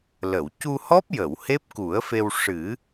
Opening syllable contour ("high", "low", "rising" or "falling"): low